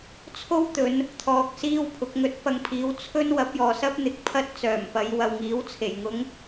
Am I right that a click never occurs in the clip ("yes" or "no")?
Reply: yes